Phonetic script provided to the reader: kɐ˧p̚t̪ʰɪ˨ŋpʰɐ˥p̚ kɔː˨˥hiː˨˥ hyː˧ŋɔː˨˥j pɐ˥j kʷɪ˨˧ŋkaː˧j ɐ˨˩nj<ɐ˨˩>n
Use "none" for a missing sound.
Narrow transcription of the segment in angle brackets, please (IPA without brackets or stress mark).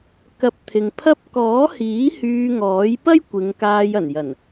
ɐ˨˩